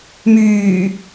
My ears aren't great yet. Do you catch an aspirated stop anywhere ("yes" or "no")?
no